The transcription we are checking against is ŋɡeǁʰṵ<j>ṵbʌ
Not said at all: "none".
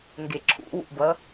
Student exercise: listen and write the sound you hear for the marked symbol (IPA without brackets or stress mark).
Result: w